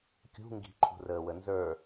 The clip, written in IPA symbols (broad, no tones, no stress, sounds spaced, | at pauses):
kʲ ṳ ŋ ɡ i̤ ǃʰ ṳ r əː w ə n z ə˞